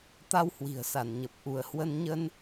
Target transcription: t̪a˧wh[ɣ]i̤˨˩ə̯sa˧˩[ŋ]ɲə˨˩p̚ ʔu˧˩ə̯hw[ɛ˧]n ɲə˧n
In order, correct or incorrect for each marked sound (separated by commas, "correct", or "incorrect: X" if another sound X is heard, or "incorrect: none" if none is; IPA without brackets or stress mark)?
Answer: incorrect: w, incorrect: n, incorrect: ə˧